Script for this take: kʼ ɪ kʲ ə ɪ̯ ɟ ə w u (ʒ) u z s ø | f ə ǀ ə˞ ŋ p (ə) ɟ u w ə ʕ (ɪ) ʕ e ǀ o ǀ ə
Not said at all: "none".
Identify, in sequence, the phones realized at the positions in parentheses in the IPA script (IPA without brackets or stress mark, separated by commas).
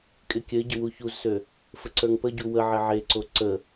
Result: ç, ə, ɪ